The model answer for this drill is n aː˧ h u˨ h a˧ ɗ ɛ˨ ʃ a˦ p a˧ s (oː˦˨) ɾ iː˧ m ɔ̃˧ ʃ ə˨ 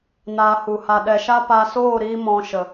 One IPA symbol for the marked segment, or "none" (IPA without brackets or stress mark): oː˦˨